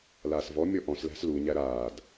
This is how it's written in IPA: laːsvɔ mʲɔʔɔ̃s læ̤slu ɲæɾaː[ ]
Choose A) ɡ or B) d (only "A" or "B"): B